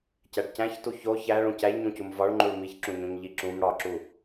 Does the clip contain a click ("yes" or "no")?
yes